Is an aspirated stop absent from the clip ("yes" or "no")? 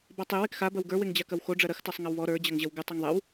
yes